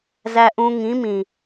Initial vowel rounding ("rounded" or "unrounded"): unrounded